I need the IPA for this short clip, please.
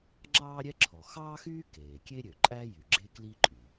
ŋ͡ǁ ɑː˥ ɾʲ ɛ˥ ǁʰ ɔ˩ x ɑː˥ x yː˥ k eː˩ kʲ e˥ ɾʲ ø˩ ǃʼ æ˥ j y˩ ɡ͡ǁ e˥ k l i˥ ǃʼ y˩

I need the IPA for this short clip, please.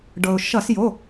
ɖ ɤ˩ ʊ̯ ʃ ʌ˧˩˧ s j o˩˧˩

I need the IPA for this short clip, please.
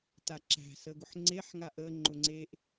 t a ǁ æ̤ s ə ɡ ʊ ħ ŋ͡ǀ e ħ ŋ a ʔ ə ŋ͡ǃ ʊ ŋ͡ǀ e ʔ

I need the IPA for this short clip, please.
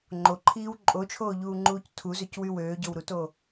ŋ͡ǃ o ǃʰ iː w ǃʼ o t͡ʃʰ oː ʎ uː ŋ͡ǃ uː c tʰ u z ø c w y w øː ɟ o w ɾ u t o

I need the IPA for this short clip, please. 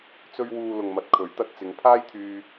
t͡s ɵ˧ ɥ w uː˨ l ʊ˨ ŋ m ɐ˨ t̚ kʰ ɵ˨˥ ɥ t̪ ɐ˧ t̚ t͡s ɪ˨˧ ŋ pʰ aː˥ j t̪ʰ yː˧

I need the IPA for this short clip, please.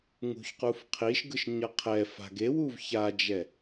ŋ ṳ ç q u f qʰ i ʃ ɡ ɯ ʃ ɲ ʌ qʰ ɛ f a̤ ɡ e w u v ç a d͡ʒ ɛ

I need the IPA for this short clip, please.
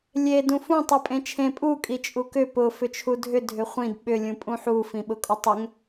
lʲ e d ũ f ũ tˤ i pʼ ẽ t͡ʃʰ ẽ pʼ u kʼ i t͡ʃʼ u k ʏ p ʊ f ʏ t͡ʃʰ u dʱ ʏ dʱ ʏ χʷ ĩ d ɓ ʏ lʲ ũ pʼ ũ ħ u f ĩ ɓ ʊ kʼ ʊ tˤ ʏ ŋ

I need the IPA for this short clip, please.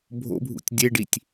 bʱ o̰ bʱ ṵ tʲ dʲ e ɖ i tʲ

